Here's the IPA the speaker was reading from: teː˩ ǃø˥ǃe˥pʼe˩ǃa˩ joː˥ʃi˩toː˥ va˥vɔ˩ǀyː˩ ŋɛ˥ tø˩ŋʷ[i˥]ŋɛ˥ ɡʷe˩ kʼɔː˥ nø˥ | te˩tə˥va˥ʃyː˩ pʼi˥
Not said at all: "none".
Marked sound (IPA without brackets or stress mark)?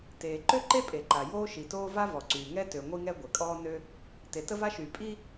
i˥